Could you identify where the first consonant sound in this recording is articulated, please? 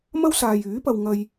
labial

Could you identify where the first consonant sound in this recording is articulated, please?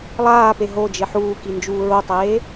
alveolar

